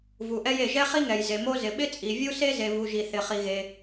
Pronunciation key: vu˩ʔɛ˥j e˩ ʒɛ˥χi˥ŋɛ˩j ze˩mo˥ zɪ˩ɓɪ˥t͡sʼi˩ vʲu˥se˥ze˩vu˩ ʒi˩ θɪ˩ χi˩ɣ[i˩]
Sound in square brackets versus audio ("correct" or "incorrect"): incorrect